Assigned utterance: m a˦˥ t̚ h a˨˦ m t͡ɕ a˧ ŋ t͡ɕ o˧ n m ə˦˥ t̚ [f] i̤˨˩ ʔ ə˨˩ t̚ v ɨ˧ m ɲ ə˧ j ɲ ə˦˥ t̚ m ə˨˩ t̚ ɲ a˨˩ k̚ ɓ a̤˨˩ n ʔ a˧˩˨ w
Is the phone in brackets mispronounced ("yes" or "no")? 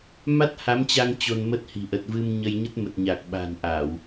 yes